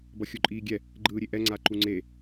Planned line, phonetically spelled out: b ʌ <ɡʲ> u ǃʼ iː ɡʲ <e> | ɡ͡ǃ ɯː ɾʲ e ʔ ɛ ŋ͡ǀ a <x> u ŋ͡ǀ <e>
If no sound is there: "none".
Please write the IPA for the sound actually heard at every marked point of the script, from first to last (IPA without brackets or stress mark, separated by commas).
xʲ, ɛ, ǃ, e